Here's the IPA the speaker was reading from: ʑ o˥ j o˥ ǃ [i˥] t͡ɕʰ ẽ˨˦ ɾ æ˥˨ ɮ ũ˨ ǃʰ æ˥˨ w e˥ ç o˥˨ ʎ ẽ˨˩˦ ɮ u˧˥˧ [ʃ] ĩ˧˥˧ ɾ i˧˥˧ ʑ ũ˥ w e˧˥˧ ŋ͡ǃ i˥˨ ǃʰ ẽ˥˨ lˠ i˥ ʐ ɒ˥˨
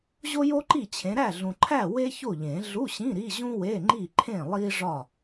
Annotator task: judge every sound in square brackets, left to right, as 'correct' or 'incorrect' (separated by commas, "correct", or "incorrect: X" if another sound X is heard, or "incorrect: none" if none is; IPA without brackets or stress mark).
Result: incorrect: i˥˨, incorrect: ɕ